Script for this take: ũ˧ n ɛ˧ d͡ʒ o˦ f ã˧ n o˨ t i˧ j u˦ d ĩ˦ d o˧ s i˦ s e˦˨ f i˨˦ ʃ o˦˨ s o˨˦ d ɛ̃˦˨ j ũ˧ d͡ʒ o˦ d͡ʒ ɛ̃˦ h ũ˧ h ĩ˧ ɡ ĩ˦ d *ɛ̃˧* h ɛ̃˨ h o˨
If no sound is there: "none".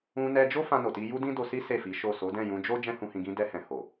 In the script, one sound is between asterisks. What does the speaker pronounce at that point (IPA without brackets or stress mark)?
ɛ˧